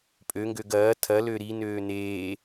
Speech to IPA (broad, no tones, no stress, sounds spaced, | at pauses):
pʼ ø ŋ ɡ ø ɡ ɐː tʰ ɐ l ø ɾ i n øː n eː